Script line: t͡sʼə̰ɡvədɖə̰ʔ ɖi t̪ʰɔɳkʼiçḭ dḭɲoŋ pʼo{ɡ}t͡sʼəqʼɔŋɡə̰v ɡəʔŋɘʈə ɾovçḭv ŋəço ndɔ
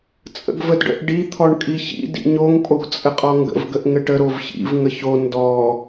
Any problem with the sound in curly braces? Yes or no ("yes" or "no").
no